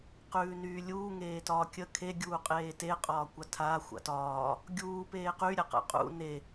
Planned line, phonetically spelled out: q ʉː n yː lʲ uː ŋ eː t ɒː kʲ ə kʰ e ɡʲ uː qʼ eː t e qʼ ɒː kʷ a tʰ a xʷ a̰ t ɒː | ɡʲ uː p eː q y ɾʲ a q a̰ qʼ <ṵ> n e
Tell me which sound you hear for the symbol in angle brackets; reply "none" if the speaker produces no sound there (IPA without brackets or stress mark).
ṵ